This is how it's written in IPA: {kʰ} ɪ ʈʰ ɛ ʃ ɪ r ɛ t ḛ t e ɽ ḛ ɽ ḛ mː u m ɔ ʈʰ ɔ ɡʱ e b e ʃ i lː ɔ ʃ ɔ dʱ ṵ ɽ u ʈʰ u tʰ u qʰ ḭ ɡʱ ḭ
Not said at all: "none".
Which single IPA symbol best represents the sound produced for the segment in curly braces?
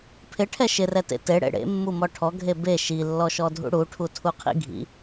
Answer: pʰ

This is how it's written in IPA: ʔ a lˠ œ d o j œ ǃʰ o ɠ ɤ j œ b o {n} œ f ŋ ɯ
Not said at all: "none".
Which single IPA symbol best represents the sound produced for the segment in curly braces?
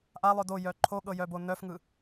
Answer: n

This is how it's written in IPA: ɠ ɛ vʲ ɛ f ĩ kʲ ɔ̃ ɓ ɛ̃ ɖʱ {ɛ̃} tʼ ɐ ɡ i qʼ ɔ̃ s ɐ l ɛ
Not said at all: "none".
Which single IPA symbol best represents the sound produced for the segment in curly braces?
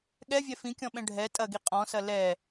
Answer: ɛ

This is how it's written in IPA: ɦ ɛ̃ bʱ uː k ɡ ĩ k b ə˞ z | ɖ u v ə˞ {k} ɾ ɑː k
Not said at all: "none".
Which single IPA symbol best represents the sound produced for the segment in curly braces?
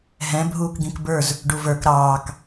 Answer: k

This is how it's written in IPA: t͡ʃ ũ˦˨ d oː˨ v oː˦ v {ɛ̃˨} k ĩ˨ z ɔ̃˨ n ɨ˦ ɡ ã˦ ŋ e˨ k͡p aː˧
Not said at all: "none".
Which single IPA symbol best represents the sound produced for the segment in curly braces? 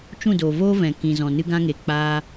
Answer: ɛ̃˨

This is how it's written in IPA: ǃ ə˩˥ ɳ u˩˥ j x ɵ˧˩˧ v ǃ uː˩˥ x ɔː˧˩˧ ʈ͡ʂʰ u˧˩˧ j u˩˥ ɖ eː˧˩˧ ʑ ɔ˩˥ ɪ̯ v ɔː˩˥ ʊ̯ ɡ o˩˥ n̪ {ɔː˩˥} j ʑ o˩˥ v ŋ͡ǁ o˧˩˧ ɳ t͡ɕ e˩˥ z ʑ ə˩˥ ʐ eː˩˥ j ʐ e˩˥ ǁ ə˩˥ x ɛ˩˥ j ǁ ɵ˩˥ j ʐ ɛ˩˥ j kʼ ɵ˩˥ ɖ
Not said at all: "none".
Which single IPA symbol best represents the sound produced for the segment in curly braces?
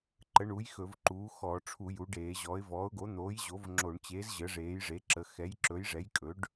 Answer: oː˩˥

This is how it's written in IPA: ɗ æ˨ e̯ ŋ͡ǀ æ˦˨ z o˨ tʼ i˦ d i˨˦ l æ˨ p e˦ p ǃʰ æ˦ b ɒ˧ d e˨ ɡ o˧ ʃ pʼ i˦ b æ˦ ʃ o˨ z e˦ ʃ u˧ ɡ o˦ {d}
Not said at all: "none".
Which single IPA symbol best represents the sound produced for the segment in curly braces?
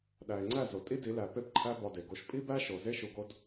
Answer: d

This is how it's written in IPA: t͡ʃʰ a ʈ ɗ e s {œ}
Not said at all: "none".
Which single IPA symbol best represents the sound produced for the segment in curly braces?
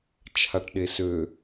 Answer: ø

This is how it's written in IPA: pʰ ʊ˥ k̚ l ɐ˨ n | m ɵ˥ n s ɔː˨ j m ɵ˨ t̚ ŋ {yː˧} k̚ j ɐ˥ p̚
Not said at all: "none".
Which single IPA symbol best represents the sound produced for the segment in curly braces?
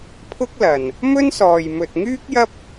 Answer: yː˥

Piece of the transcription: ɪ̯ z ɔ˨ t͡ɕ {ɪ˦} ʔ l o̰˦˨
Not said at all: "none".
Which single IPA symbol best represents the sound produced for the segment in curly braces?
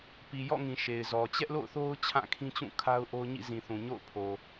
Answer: ɛ˦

